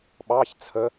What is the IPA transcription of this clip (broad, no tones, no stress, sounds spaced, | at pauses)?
ɓ ɑ ç t͡sʰ ə